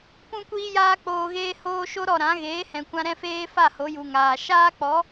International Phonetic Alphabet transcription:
p ũ˦ kʷ iː˦ j aː˦ k͡p oː˧ ɣ eː˦ h oː˦ ʃ o˦ ɾ ɔ˦˨ ɾ ã˨˦ ɣ eː˨˦ h ɛ̃˨ kʷ ã˧ ɾ ɛ̃˦ f eː˦ f a˦˨ h o˨˦ j u˨ ŋ aː˨ ʃ aː˦ k͡p ɔ˨˦

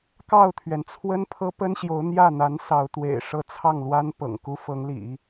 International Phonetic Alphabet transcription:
k ɑ˥˩ ʊ̯ t̪ʰ ɥ ɛ˩ n t͡sʰ w ə˥ n pʰ ɤ˥ p ə˥ n ɕ j o˧˥ ʊ̯ n̪ j ä˥˩ n̪ a˧˥ n s ɑ˧˥ ʊ̯ t̪ w ḛ˨˩ ɪ̯ ʂ ɤ˥ t͡sʰ ɑ˥˩ ŋ l w a˥ n p ɤ̰˨˩ ŋ k u˥ f ɤ˧˥ ŋ l ḭ˨˩˦

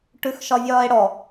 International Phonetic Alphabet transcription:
ʈ ʉ x ʃ ɒ vʲ ɒː e̯ ɽ ɔ

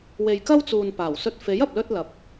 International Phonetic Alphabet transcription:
w e˨ j k ɐ˥ w t͡s uː˨ n p aː˨˩ w s ɵ˧ t̚ f e˨˥ j ɐ˨ p̚ l ɵ˧ t̚ l ɐ˨˥ p̚

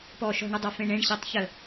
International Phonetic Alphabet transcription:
p ɔ ʃ ɔ̤ ɳ ə dˤ a f ẽ ɳ ẽ ɳ ɕ e tˤ ç ə

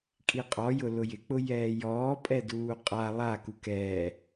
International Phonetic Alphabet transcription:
kʼ i qʼ ɔ j ʊ l ʊ j ɪ k͡p ʊ j ɛː j ɔː pʼ ɛ d uː qʼ a lˠ a k u k ɛː

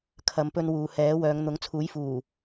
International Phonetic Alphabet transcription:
kʰ ɐ˨˧ m p ɵ˧ n w uː˨ h ɛː˨˥ w œː˨˧ ŋ n̪ ʊ˨˥ ŋ t͡sʰ uː˨˥ j f uː˨˩

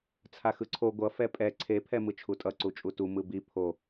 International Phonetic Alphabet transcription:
t͡sʰ a x ɯ ǀʰ o ɡʷ ʌ f ɛ pʼ ɛ ǀʰ e pʰ ɛ m ɯ t͡ʃʰ u tʼ ʌ ǀ u t͡ʃʼ u t u m ɯ b i pʰ o

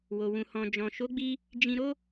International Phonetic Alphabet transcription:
w o˨ w ũ˨ h ɔ̃˨ d͡ʒ ɔ̃˨ ʃ o˨˦ ɡ͡b i˧ | d͡ʒ ĩ˧ ɾ o˦

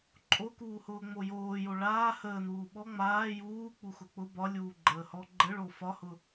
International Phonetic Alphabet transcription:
ǃʼ o k uː h ʊː ŋ͡m o j oː j o ɭ aː h əː n uː ɓ ɔ ŋ͡m aː j uː k͡p u x ʊ k͡p ʊ b ɒ lʲ uː ɡ͡ǃ əː h ɔ ɡ͡ǃ ə ɭ o f ɒ h ʊ

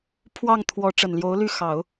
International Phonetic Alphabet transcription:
pʰ w ɑ˥˩ ŋ t̪ʰ w ɔ˧˥ ʈ͡ʂ ə˨˩ n l j o˧˥ ʊ̯ l y˥˩ x ɑ˨˩˦ ʊ̯

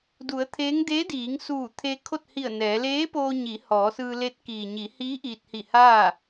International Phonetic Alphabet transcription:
d u˩˧ ə̯ t̪ʰ eː˧˥ ŋ d eː˧˥ d iː˩˧ ŋ s uː˧˩ t̪ʰ e˧ kʰ o˥˨ t̚ h i˧˩ ə̯ n ɛː˩˧ l eː˧˥ p oː˧ ɲ i˩˧ h ɔː˩˧ s ɯː˧ l e˧˥ t̚ k iː˩ ɲ i˩˧ h iː˧˥ ʔ iː˧ t̚ h i˧˩ h aː˥˨

